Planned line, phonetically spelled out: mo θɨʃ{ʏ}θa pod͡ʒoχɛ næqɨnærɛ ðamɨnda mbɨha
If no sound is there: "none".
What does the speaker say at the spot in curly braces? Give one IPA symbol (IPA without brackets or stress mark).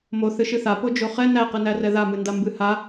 ɨ